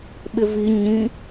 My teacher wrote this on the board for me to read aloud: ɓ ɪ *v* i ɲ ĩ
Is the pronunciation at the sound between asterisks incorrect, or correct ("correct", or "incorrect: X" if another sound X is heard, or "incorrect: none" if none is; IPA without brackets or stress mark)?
correct